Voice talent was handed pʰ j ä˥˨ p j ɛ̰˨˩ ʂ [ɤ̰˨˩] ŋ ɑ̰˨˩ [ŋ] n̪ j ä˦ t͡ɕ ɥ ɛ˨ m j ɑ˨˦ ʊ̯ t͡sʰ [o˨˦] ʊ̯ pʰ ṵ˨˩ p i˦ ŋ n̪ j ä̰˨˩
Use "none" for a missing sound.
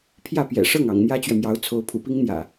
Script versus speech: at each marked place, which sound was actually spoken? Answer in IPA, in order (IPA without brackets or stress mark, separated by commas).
ɤ˥˨, ŋ, o˨˦